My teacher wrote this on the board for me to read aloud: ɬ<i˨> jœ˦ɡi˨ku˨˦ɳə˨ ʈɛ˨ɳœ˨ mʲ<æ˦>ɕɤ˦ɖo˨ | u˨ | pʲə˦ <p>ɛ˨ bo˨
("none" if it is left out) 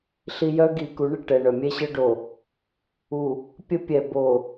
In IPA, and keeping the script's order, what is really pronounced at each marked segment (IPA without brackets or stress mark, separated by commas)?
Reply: i˨, ɛ˦, pʲ